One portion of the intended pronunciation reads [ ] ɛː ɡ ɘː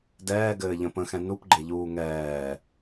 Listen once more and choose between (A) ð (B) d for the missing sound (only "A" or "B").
B